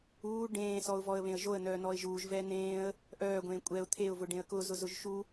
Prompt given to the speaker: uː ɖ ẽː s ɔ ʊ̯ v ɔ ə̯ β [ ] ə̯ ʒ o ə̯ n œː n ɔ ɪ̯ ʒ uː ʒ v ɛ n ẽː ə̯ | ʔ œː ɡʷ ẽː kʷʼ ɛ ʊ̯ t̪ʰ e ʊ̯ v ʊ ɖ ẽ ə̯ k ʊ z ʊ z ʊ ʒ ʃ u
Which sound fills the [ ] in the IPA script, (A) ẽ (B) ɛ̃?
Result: A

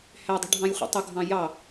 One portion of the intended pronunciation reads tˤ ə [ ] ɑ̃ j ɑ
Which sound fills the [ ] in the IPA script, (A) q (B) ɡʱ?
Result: B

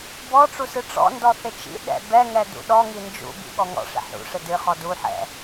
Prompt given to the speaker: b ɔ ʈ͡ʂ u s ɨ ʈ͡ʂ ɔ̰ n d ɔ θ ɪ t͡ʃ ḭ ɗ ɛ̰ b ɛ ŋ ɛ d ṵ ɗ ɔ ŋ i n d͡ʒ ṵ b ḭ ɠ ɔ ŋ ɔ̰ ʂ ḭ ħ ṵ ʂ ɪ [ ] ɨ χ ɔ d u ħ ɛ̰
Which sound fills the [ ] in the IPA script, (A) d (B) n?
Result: A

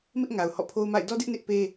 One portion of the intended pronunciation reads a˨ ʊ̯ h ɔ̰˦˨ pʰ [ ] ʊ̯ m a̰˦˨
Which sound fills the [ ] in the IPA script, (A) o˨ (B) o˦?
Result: B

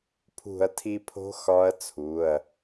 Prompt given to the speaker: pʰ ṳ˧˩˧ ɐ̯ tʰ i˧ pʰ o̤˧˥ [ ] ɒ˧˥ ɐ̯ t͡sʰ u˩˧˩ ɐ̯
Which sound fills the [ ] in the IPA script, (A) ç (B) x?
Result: B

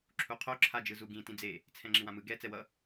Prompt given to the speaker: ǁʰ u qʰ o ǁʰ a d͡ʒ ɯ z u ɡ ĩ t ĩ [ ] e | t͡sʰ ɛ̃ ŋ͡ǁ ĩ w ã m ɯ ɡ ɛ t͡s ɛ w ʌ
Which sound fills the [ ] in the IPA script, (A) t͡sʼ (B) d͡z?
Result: B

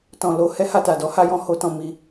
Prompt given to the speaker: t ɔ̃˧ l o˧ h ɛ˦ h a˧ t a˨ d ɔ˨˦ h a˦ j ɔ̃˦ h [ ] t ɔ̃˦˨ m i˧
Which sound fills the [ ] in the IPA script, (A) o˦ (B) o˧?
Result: A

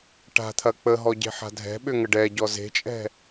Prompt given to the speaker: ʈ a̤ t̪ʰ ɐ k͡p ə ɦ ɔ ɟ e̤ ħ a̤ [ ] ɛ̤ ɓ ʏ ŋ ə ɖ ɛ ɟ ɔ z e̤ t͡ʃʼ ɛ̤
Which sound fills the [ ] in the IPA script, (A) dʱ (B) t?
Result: A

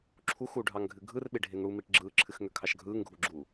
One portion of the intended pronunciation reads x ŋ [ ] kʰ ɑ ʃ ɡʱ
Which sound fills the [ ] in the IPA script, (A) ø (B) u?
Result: A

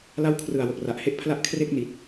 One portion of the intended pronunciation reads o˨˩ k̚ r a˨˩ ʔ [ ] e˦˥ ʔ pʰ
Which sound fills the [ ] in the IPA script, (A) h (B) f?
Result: A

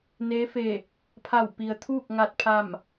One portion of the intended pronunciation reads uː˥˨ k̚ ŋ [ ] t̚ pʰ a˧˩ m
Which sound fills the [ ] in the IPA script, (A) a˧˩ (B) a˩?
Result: A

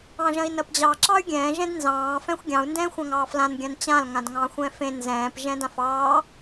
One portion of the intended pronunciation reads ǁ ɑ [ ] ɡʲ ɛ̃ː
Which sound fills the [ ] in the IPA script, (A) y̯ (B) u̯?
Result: A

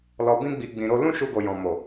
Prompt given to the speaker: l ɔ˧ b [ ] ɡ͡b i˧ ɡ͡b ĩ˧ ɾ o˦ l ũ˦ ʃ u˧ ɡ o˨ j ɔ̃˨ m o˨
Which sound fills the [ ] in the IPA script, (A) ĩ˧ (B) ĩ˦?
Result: B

